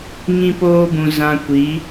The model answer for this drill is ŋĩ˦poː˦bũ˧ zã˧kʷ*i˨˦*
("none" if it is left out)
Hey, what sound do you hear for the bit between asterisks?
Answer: i˨˦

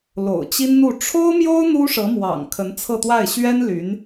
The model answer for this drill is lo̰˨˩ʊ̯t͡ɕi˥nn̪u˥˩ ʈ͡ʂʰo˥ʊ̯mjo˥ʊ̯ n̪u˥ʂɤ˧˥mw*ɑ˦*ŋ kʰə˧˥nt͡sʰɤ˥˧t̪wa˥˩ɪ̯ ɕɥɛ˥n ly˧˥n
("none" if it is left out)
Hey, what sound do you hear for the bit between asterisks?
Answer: ɑ̰˨˩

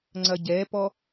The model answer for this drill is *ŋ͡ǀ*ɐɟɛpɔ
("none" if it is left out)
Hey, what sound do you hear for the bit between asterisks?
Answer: ŋ͡ǀ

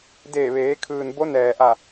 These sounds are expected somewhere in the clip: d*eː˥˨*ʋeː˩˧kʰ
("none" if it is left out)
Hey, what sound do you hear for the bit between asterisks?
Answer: eː˧˩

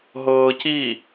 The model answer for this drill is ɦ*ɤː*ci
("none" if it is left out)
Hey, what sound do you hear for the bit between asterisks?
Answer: ɤː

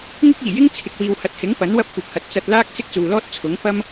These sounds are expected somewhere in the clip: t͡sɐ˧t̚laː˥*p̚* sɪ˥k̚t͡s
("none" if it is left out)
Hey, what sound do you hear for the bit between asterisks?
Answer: k̚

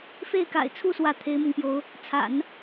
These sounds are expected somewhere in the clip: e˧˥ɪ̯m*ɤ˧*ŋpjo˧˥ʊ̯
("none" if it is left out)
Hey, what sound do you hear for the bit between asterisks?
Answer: ɤ˧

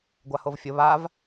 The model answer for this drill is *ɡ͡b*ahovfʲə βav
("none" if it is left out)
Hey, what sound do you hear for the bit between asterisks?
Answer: ɡʷ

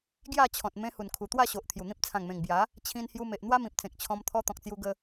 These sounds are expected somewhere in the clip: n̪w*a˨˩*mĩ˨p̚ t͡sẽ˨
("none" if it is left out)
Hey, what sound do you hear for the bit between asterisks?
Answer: a˦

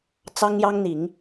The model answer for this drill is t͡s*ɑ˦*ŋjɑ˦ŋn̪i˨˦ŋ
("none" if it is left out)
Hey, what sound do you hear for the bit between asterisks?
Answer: ɑ˦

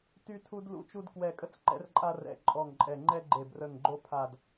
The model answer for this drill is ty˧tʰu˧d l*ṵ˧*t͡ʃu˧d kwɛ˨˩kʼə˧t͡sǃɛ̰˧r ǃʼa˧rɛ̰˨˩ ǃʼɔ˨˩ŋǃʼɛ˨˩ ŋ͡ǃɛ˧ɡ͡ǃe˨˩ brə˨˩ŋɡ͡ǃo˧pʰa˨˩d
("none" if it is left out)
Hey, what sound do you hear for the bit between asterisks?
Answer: ṵ˧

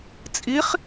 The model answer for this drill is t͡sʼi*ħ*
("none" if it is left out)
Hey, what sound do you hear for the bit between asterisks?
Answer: χ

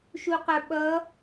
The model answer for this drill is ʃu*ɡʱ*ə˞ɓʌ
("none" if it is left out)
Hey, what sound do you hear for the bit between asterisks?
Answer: q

